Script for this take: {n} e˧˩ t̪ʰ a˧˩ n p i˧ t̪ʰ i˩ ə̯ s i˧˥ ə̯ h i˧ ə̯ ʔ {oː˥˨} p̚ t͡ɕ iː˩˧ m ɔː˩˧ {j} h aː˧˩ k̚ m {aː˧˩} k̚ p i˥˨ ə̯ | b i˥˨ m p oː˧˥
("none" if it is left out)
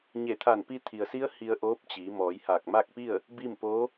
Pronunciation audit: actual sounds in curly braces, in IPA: ɲ, oː˧˥, j, aː˥˨

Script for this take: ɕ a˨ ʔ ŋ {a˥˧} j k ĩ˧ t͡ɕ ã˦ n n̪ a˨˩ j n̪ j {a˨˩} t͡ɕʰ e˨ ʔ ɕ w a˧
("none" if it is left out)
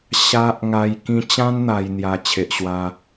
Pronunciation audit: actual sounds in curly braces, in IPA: a˨˩, a˨˩

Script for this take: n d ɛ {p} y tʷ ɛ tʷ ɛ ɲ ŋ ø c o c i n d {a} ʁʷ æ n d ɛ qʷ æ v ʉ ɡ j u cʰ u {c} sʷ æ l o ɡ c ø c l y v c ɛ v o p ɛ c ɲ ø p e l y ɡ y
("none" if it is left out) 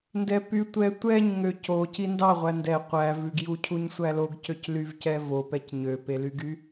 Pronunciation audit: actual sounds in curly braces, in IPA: p, ɑ, ɲ

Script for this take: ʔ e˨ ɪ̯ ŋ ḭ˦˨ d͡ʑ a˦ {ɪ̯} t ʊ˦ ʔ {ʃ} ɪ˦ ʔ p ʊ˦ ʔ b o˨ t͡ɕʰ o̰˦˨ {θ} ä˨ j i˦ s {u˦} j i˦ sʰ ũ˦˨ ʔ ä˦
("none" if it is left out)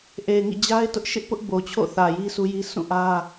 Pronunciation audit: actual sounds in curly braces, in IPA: ɪ̯, ʃ, θ, u˦

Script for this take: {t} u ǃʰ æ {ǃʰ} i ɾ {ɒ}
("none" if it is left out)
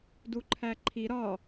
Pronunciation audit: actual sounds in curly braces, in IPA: d, ǃʰ, ɒ

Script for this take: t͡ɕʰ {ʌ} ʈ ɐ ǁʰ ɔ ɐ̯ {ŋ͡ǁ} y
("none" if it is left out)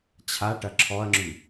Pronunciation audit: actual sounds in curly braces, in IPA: a, ŋ͡ǁ

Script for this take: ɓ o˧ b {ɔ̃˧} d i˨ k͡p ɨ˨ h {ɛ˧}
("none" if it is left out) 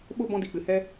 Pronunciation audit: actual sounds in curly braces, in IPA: ɔ̃˧, ɛ˧

